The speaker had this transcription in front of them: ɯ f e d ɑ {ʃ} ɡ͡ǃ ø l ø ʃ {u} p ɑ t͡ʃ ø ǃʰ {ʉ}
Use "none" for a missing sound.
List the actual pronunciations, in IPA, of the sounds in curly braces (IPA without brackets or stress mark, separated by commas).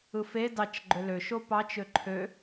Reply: t͡ʃ, o, ø